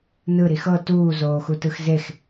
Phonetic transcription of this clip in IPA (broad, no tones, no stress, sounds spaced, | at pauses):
n ɯ ɾ i x ɤ t uː z oː x u t ɯ x z e x